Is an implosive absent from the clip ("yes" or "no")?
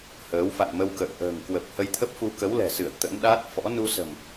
no